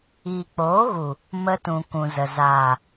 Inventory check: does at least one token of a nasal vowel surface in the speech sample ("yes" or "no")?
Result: yes